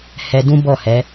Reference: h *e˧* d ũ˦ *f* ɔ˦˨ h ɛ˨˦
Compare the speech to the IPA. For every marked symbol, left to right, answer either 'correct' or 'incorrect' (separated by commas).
incorrect, incorrect